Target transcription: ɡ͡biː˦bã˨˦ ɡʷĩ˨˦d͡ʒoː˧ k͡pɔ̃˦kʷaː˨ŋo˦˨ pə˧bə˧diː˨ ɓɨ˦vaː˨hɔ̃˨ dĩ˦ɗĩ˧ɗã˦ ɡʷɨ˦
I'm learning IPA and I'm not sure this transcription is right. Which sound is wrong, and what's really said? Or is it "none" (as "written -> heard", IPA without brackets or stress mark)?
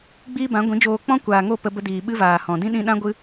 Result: none